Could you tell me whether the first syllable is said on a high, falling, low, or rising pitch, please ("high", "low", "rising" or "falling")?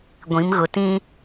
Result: rising